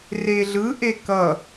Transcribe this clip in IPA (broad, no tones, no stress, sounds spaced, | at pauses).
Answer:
r e ɮ ɯ ʔ e k ʌ